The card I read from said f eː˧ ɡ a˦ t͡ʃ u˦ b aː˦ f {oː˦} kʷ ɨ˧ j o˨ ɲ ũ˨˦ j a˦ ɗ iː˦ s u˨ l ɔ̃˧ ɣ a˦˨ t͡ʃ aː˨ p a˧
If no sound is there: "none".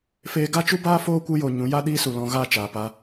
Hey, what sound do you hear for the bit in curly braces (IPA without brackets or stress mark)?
oː˦